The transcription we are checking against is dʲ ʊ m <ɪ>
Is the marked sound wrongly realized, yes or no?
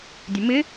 no